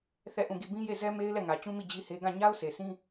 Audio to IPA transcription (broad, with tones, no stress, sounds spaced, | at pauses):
θ ɛ˦˨ ʔ ũ˦˨ ɡ i˦˨ b ĩ˦ j e˦˨ z ɛ˦ m e˦ ɪ̯ l ɛ˦˨ ŋ ä˨ t͡ɕ ũ˦ m i˦˨ d͡ʑ i˦ h e˦ ɡ ã˦˨ ɲ a˦ ʊ̯ s e˨ s ĩ˦